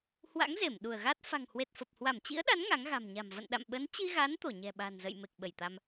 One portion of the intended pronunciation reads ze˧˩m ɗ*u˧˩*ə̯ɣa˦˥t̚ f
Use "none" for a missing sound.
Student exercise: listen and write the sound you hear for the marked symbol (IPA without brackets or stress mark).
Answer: u˧˩